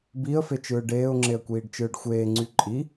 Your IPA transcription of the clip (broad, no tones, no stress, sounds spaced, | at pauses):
b i ə̯ f e t͡ʃ ɯː ɖ eː ʊ̯ ŋ͡ǁ e ə̯ kʷ iː ɖ t͡ʃ ɯː ɖ xʷ eː ŋ͡ǀ y ǃʼ i